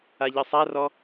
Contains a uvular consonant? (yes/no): no